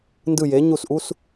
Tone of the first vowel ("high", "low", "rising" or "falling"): falling